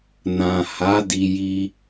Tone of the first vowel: low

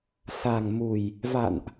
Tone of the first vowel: low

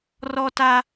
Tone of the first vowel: high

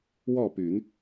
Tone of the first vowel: falling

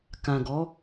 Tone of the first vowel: low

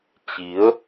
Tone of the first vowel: rising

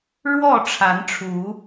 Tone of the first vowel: falling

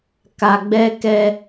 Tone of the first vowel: low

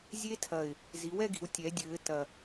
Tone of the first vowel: high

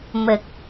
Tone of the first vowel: low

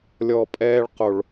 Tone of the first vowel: low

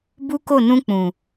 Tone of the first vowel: high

